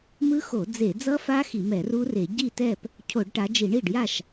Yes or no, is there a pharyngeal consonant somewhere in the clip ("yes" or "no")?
no